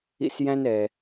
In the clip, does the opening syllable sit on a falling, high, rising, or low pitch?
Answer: high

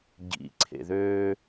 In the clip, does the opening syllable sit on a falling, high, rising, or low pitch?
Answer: low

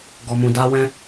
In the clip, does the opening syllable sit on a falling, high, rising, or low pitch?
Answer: low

